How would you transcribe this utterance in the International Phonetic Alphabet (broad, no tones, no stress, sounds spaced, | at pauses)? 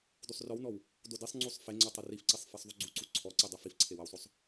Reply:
d u sˤ r ɔ w n ɔ w | d o d i sˤ ŋ͡ǀ u sˤ f e ŋ͡ǀ ɔ tˤ ɐ r i f ǀ i sˤ f e sˤ ðˤ u ɡ͡ǀ u ǀ u ǀʰ ɔ ǀ i dˤ ɛ f i f ǀʰ e w ɐ w sˤ o sˤ